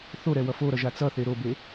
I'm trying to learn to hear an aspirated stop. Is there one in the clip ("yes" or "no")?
no